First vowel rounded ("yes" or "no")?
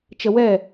no